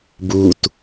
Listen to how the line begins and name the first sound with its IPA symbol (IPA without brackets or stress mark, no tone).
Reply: b